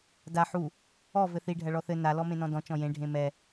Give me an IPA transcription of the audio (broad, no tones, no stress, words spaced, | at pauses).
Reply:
da ħu | ɔ vɘθi ɖʱɐɭɔθɘ na lɔmẽnɔ̃dɔ̃ t͡ʃɔ̃jẽ ɖʱẽmɛ